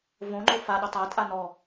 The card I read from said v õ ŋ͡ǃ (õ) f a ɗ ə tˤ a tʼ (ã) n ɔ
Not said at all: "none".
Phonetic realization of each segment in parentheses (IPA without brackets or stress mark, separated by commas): o, a